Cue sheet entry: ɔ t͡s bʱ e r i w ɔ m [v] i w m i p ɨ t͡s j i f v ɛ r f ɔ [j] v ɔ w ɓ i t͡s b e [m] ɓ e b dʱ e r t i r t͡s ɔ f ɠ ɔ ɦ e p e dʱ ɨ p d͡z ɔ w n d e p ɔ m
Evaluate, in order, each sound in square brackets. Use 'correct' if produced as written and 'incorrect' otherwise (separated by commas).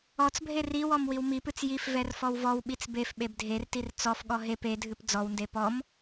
incorrect, incorrect, incorrect